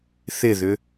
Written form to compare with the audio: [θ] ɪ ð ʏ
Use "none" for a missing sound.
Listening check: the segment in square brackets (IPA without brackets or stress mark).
θ